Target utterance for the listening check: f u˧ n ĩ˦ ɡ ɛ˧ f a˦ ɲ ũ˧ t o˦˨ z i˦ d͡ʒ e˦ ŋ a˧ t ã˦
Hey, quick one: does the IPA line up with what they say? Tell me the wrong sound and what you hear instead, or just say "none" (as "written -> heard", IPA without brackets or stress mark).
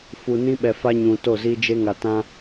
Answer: ɡ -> ɓ